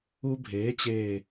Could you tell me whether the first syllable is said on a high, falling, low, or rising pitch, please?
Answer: high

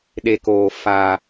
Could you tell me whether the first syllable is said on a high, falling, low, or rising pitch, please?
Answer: low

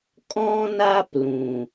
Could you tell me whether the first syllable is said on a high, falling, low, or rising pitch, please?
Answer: high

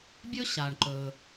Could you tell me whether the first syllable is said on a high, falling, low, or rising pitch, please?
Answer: high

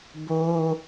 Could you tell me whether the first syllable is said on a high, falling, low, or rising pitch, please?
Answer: high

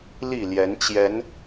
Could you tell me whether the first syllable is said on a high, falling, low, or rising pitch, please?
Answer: falling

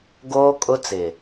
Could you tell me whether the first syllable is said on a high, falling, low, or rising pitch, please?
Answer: high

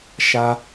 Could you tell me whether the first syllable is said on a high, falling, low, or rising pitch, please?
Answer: low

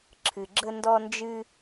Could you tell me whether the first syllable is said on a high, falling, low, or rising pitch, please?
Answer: low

